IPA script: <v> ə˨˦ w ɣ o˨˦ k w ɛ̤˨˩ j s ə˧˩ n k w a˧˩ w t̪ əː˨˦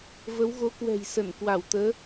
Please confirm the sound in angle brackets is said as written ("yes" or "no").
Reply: yes